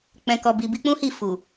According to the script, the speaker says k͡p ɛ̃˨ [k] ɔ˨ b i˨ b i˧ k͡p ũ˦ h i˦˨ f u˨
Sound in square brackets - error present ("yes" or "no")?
no